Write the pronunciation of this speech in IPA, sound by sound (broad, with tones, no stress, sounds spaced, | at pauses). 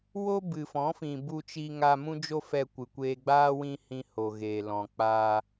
w o˦ b ɨ˨ f ɔ̃˨˦ f ĩ˨ b u˧ t͡ʃ i˧ ŋ a˧ m ũ˦ d͡ʒ o˦ f ɛ˧ kʷ ɨ˨ kʷ eː˧ ɡ͡b aː˦ w ĩ˦ h ĩ˧ h o˨ ɣ eː˨ l ɔ̃˨ k͡p aː˧